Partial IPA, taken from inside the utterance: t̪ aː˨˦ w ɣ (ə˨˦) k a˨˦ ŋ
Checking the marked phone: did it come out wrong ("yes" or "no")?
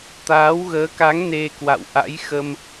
yes